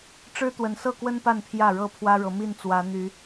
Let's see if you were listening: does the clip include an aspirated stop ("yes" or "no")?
yes